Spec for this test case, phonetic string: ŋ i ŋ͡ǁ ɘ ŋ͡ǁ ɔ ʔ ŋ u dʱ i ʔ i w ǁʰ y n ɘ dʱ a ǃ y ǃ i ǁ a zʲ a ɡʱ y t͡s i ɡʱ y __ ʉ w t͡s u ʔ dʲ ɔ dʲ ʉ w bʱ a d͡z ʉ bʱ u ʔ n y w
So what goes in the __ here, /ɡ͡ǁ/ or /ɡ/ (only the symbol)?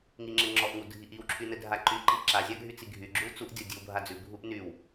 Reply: ɡ͡ǁ